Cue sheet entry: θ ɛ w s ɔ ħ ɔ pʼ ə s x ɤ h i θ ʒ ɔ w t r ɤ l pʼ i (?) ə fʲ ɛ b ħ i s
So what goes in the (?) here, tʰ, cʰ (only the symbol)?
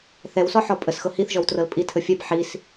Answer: tʰ